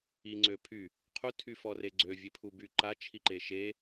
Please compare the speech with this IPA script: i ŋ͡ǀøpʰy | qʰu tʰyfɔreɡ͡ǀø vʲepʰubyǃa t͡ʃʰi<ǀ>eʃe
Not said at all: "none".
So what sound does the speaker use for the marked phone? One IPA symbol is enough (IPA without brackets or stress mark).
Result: ǃ